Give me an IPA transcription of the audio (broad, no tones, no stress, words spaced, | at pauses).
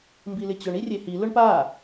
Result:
mbilɪt͡ɕʊɳ irʲehi lʊɳpa